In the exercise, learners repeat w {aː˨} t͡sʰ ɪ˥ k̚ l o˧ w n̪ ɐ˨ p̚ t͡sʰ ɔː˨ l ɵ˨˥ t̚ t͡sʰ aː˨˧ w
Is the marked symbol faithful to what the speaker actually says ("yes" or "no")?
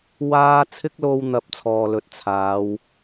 no